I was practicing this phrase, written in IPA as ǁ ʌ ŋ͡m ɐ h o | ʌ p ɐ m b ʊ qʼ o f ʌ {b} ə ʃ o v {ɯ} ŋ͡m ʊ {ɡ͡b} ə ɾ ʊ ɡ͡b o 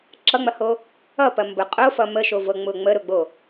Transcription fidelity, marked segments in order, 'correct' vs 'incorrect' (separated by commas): incorrect, incorrect, incorrect